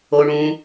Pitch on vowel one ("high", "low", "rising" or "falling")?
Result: low